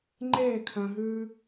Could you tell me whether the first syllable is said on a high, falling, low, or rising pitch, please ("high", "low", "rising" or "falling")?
falling